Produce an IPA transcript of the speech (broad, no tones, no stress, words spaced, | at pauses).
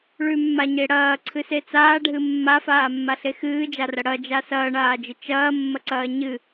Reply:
ɭʉmːaɲe ɽɐːǀʰɨse t͡saːɖʱɨ mːafaːmːaɬe xɨːd͡ʒarɐ ɽɐd͡ʒa sɐːɳaːd͡ʒɨ t͡ʃɐːmːɐǀɐː ɲɨ